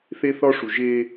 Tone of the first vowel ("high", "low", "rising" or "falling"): high